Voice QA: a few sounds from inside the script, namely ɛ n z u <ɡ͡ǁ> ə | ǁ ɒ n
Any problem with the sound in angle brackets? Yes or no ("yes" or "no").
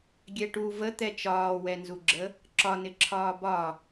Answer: no